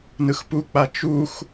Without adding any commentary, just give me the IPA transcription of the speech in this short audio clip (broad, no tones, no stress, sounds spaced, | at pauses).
n ɯ x p u k͡p a t͡ʃ u x